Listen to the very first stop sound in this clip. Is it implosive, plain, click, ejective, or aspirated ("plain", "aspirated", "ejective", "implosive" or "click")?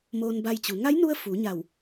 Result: plain